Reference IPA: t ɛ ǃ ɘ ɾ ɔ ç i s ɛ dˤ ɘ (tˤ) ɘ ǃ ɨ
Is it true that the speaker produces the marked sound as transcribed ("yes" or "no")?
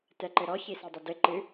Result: no